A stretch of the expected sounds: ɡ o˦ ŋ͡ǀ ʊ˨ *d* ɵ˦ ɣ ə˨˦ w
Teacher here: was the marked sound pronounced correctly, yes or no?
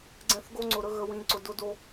no